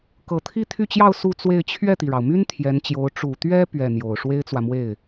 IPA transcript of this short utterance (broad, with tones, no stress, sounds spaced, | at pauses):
k ɤ˨˩ t̪ʰ i˥ t̪ʰ y˥˧ t͡ɕ j ɑ˥˧ ʊ̯ s u˥˧ t͡s w e˥˧ ɪ̯ t͡ɕʰ ɥ ɛ˥˩ t̪ i˩ ɻ ɑ˩ ʊ̯ m y˥ n t̪ʰ j ɛ˧˥ n t͡ɕ j o˧˥ ʊ̯ ʈ͡ʂ u˨˩ t̪ ɥ ɛ˥ p ɥ ɛ˥˩ n̪ j o˨˩ ʊ̯ ʂ w e˥ ɪ̯ t͡s w ä˨ m w e˥˩ ɪ̯